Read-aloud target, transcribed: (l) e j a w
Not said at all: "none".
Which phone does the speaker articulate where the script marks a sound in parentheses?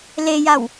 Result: l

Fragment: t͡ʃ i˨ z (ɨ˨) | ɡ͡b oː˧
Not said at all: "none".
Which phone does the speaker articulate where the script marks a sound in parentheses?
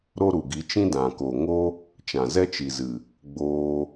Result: ɨ˨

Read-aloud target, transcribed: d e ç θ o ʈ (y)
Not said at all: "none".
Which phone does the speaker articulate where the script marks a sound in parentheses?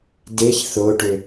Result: ø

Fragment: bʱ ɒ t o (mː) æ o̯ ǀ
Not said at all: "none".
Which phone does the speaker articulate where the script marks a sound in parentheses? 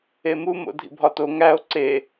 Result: ŋ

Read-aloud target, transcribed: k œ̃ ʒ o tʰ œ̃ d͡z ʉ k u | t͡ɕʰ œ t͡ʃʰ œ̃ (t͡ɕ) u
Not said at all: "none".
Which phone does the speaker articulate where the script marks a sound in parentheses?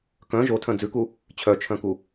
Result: k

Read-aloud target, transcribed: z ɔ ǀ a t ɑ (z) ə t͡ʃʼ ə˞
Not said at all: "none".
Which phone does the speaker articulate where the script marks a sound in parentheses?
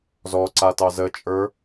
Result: z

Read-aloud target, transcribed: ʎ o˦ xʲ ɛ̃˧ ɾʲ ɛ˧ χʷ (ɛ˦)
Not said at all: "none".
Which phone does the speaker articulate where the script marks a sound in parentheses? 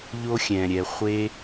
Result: e˦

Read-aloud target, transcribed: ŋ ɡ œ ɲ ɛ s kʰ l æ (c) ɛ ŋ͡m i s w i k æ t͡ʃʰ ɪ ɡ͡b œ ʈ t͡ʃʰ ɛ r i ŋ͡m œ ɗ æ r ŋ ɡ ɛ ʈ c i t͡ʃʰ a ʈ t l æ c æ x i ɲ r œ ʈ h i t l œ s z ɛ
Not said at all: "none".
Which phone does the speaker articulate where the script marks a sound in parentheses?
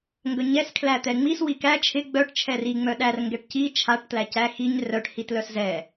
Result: t̪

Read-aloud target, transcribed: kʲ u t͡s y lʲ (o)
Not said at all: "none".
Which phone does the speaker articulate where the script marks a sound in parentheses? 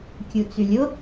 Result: o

